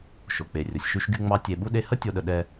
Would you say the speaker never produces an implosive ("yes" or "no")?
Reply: no